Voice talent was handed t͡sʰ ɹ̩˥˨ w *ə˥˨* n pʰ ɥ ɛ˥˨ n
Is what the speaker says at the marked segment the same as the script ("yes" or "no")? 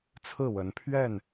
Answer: no